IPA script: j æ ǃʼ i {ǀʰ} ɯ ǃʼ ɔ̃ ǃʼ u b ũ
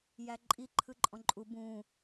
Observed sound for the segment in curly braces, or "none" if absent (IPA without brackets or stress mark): ǃʰ